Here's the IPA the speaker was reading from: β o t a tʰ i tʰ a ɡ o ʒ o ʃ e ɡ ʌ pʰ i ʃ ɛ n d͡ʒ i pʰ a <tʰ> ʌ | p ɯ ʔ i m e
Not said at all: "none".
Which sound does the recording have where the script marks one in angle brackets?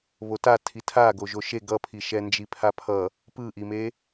pʰ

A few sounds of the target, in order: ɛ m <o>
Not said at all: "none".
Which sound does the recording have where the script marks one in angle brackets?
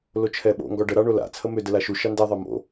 o̰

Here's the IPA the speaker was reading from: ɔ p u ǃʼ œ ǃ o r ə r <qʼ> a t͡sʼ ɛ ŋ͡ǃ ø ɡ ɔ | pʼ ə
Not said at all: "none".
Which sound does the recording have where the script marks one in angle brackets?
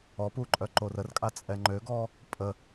kʼ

